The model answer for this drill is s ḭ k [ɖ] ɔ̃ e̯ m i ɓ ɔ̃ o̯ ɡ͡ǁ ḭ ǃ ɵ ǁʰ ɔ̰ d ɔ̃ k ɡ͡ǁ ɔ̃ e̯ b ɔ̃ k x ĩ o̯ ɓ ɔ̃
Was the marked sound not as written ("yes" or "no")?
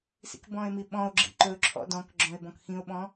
yes